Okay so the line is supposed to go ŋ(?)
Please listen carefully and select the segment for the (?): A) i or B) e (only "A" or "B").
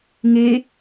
B